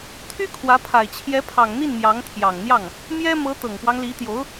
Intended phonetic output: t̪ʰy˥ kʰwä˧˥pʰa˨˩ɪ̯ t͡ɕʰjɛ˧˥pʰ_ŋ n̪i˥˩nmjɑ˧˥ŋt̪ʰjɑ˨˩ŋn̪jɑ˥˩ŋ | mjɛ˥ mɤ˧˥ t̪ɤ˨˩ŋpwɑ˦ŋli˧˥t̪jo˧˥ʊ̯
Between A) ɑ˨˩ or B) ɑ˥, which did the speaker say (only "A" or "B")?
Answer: A